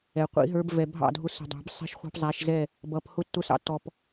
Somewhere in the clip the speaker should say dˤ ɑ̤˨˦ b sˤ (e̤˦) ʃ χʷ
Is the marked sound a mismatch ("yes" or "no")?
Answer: yes